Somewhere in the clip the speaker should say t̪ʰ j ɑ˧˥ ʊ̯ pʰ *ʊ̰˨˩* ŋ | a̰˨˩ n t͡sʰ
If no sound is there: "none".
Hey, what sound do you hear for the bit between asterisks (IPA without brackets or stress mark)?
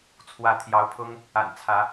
ʊ˥